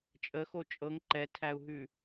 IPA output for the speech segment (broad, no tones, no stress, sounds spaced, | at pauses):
t͡ʃʼ ə x o t͡ʃʼ ɤ ŋ ǃ ɛ tʰ æ u̯ ɦ ʉ